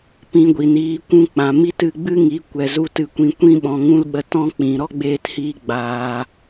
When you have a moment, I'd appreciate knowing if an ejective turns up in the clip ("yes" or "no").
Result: no